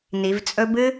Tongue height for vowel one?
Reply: high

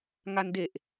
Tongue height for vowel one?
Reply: low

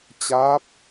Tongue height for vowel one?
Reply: low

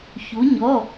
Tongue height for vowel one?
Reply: high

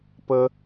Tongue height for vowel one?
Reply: mid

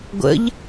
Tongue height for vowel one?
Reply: mid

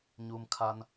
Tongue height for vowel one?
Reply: high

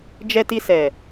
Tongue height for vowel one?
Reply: mid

